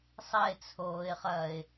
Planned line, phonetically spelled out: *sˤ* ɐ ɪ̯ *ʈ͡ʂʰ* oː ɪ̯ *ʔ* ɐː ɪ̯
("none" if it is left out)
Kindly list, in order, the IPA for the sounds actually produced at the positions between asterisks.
sˤ, t͡sʰ, χ

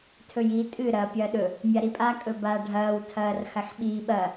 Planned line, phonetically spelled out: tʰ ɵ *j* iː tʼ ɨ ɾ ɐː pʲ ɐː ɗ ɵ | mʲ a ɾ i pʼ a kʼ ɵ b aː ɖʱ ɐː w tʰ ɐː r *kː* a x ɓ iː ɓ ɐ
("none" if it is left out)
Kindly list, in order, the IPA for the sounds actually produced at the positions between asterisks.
j, x

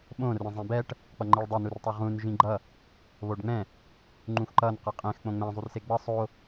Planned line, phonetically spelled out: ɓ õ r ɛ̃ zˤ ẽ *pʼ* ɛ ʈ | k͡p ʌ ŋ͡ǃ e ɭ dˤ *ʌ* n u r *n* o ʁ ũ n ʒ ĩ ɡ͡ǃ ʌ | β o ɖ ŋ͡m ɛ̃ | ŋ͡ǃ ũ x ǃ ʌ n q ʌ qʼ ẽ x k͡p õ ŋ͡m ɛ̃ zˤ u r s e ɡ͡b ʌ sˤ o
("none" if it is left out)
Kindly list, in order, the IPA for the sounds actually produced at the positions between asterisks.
b, ʌ, tˤ

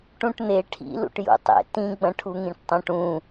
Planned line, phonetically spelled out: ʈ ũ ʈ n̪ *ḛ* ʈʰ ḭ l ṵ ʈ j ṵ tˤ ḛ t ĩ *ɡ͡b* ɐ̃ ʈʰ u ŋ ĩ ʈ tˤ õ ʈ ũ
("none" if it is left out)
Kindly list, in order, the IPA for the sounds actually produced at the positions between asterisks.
e, ɡ͡b

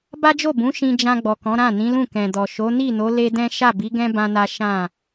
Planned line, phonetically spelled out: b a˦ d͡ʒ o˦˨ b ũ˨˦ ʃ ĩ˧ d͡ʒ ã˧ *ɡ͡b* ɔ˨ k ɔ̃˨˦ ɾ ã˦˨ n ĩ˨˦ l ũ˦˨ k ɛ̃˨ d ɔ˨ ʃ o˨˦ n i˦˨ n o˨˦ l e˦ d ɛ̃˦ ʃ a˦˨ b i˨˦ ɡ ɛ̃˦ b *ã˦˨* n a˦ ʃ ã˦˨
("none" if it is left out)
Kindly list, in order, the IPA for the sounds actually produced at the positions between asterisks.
ɡ͡b, ã˦

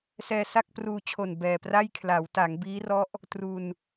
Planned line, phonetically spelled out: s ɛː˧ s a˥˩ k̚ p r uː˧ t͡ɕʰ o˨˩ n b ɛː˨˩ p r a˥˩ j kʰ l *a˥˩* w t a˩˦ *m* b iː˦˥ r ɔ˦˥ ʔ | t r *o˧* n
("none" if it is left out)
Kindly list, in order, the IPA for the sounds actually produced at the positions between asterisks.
a˩˦, ŋ, u˧

